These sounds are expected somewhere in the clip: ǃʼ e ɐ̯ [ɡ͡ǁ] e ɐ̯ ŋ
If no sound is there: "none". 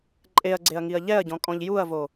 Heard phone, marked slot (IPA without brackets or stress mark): ɡ͡ǀ